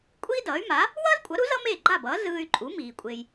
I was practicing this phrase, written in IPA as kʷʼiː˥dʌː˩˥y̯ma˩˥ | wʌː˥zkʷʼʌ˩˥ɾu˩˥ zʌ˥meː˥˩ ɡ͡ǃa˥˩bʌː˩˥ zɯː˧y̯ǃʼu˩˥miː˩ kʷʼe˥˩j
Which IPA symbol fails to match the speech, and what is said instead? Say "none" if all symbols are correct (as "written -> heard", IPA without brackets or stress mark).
e˥˩ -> e˩